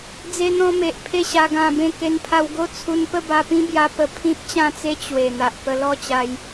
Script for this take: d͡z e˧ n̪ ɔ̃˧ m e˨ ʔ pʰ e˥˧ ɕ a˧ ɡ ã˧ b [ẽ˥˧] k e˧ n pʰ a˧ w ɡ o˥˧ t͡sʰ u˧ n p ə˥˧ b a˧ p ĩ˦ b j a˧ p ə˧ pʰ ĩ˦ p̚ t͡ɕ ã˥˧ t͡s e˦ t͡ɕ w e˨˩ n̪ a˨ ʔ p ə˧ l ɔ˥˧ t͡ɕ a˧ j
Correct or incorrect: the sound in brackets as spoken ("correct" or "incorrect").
correct